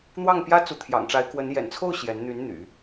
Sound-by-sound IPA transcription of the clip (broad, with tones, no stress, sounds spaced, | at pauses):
n̪ w ɑ˥˩ ŋ p j ä˥ t͡s u˧˥ t̪ʰ j ɑ̰˨˩ ŋ ʈ͡ʂ a˧˥ ɪ̯ k w ə˧˥ n j ɛ̰˨˩ n t͡sʰ o˥˩ ʊ̯ ɕ j ɛ˧˥ n n̪ y˧˥ n n̪ y̰˨˩˦